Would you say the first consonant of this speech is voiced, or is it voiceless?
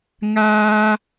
voiced